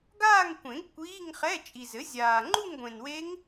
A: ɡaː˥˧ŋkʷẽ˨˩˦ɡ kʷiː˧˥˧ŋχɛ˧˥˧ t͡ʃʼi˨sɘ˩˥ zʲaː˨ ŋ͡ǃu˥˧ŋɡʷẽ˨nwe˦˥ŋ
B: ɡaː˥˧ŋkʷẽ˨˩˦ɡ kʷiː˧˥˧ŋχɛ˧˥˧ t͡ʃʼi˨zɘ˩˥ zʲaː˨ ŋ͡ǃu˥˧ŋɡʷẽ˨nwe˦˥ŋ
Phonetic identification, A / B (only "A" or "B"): B